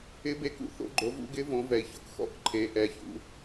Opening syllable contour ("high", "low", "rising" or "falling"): rising